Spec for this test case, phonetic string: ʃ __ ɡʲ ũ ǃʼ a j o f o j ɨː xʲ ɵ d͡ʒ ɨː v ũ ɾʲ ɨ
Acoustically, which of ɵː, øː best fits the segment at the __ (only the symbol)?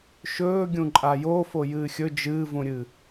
ɵː